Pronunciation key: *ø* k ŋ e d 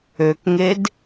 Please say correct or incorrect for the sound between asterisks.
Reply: correct